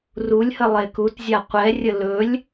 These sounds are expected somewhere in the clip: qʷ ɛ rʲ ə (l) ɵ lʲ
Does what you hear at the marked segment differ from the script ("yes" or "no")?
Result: no